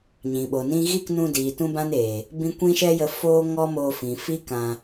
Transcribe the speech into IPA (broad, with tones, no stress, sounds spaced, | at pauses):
ɲ ĩ˨ ɓ o˨ n ĩ˦ ɣ i˦˨ k n ũ˧ d iː˨ t ũ˦ b ã˦ n eː˨ | b ĩ˦ kʷ ĩ˦ ʃ ɛ˦ j ə˧ f oː˦ ŋ ɔ˦ m oː˧ f ĩ˨ f i˦ k ã˧